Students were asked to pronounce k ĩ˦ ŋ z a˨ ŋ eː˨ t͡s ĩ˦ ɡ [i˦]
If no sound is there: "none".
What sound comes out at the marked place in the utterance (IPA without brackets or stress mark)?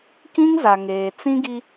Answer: i˦